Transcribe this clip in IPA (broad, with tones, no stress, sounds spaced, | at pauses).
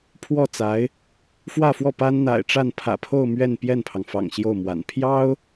pʰ w ɔ˥˩ t͡s a˧˥ ɪ̯ | f w ä˥˧ f w ɔ˥˩ p a˥ n n̪ a̰˨˩ ɪ̯ ʈ͡ʂ a˥˩ n pʰ ä̰˨˩ pʰ o˥˧ ʊ̯ m ɥ ɛ˥˧ n p j ɛ˥˩ n pʰ ɑ˩ ŋ f ɑ̰˨˩ ŋ ɕ j o˥˩ ʊ̯ m w a̰˨˩ n pʰ j ɑ˥ ʊ̯